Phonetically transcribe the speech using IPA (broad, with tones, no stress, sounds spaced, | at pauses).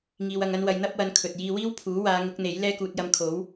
ŋ iː˧ w ɐ˧ ŋ ɐ˥ n w ɐ˧ j n̪ ɐ˥ p̚ w ɐ˧ n kʰ ɵ˨ t̚ j iː˧ w iː˥ w pʰ uː˨˥ w aː˨˧ ŋ ʊ˨˥ k̚ n̪ e˨˥ j l ɛː˥ k uː˧ t̚ j ɐ˧ m kʰ o˨˥ w